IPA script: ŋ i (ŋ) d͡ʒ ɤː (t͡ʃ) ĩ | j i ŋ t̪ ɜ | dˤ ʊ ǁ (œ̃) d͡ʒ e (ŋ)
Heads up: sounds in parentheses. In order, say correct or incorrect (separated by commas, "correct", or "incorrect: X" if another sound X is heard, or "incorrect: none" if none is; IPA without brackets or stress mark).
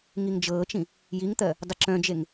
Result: correct, correct, correct, correct